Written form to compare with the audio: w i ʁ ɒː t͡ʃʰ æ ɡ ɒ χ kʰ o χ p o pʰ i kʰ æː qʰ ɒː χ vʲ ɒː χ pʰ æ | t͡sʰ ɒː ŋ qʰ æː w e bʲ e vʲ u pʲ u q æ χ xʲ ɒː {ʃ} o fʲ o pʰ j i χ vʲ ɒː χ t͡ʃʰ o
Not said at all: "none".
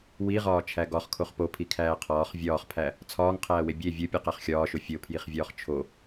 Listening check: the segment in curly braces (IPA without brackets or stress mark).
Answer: ʃ